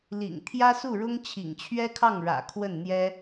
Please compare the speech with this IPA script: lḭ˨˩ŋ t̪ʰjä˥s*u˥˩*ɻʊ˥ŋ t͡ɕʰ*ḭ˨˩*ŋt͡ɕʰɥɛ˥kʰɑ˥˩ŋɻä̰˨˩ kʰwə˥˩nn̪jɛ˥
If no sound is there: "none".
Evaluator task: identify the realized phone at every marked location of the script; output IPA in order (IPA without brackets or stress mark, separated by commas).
u˥˩, ḭ˨˩